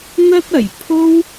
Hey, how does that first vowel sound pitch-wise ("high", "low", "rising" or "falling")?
high